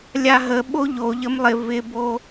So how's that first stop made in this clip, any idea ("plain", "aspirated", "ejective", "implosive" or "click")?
implosive